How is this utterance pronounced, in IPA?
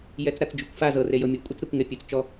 jɛt͡sɾat͡sd͡ʒukʷfa zɤ rejɤmʲo kʷʼet͡sɾɛkʷŋepʲut͡s t͡ʃɔ

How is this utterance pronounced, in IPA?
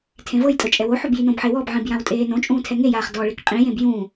tʰẽvɤjtʼɤ t͡ʃʼɛwoħob jinõbħe wɔbʕĩb jãwtʼeːnõt͡ʃʼũː tʰɛŋejaːχ dɔɭek qʼĩjẽb jũ

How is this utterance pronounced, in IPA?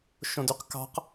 ʃõdyqkɑ̤q

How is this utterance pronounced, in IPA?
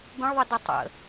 bə̃ɭðˤədə tˤə̰

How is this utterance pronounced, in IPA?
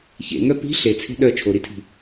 çḛŋœ pi̤ ɬet͡sʰe̤ ɗœ t͡ʃʰoɾitʰi̤

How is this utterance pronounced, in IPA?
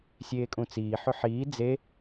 sʲeːkʼũt͡siː ħʏħiː d͡ze

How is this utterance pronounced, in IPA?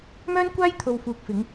mœː˥nkʷaː˥jt̪ʰo˨wfuː˨k̚ fɪ˨˧ŋ

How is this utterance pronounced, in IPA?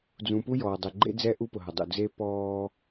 d͡zũ˨pu˦jɔː˨ dˤe˨ɡ͡ǃḛ˦d͡zɛ˦ ʔu˦pʊ˨ɦɐ˨dˤṵ˨ d͡ze˦pɔː˦

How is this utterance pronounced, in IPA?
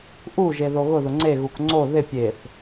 ʔuʒe ðoɣʊðʊ ŋ͡ǀeɣuk ŋ͡ǀo ðɪ pʲeθ

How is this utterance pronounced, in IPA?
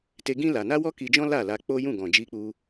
te˧ɡĩ˦ la˧ na˦ wɔ˦ki˧d͡ʒɔ̃˦ la˦˨la˧k͡po˦ jũ˦˨ɡɔ̃˨ d͡ʒi˧k͡pu˧

